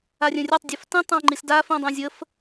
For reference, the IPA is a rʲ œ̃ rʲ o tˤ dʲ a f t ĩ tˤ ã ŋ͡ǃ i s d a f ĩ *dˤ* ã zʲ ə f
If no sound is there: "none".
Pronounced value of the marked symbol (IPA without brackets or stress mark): dˤ